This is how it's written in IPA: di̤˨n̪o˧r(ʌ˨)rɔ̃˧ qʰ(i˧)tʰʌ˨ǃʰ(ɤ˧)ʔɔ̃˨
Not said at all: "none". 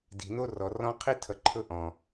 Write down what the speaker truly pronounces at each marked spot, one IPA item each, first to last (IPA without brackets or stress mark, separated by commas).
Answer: ɔ˨, i˧, ɤ˧